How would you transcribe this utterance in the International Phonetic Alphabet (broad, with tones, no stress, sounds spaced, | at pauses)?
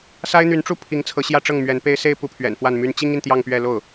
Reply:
s a˥ ɪ̯ n̪ y˧˥ n ʈ͡ʂ u˥˩ pʰ i˧˥ ŋ t͡sʰ ɤ˧˥ ɕ j ä˥˧ ʈ͡ʂ ɤ˥˩ ŋ m ɥ ɛ˧˥ n p e˥ ɪ̯ s e˥˧ ɪ̯ p u˥˩ pʰ ɥ ɛ̰˨˩ n f w a˥˩ n m y˥ n t͡ɕ i˥ ŋ i˨ n t̪ j ɑ˥˧ ŋ p ɥ ɛ˥˧ l o˥˩ ʊ̯